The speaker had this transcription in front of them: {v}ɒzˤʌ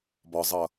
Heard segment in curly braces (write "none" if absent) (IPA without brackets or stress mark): b